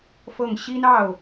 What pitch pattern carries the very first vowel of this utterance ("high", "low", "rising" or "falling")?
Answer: falling